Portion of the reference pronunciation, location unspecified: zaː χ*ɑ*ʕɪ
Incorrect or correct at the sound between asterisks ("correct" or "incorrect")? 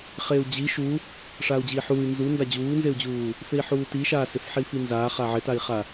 incorrect